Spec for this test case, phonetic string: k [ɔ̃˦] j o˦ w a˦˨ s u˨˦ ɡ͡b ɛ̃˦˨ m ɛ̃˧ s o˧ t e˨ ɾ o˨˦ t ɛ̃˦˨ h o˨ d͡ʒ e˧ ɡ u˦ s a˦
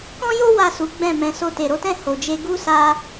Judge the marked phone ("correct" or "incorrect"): correct